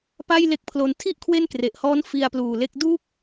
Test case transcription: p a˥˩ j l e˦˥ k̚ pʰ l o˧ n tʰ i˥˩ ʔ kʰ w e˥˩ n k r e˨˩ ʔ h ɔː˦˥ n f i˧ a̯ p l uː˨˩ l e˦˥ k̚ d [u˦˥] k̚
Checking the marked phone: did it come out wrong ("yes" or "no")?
no